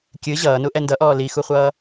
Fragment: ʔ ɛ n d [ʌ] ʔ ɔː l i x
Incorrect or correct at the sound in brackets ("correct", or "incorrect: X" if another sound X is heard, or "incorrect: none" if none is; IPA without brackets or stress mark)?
correct